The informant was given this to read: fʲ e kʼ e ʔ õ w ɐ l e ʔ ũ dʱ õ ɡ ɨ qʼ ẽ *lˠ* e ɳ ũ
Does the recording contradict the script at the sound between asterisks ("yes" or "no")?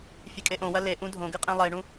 no